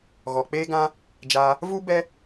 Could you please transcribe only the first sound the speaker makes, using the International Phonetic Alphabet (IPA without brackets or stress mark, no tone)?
ɣ